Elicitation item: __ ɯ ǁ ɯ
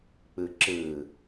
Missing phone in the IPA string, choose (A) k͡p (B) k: A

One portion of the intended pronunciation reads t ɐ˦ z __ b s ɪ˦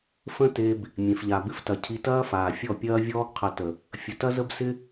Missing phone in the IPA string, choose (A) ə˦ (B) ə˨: A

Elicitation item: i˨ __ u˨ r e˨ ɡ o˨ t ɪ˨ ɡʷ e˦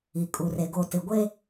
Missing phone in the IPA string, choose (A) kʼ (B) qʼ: A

